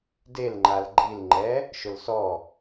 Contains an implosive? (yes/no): no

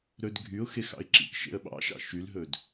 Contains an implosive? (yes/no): yes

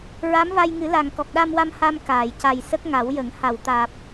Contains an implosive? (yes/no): yes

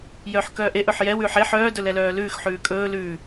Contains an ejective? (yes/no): yes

